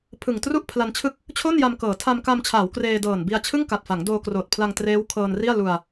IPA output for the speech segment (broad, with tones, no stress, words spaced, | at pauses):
pʰɯ˨˩ŋ tru˥˩ʔpʰla˧nt͡ɕʰɯ˥˩k̚ | t͡ɕʰo˥˩nja˧mkɤː˩˦ tʰa˧mka˧mt͡ɕʰaː˩˦w kreː˧dɤː˨˩nbi˧a̯ t͡ɕʰɯ˥˩ŋka˨˩t̚fa˩˦ŋ doː˧kroː˨˩t̚pʰla˧ŋ treː˦˥wkʰɤː˧nri˥˩a̯ lu˧a̯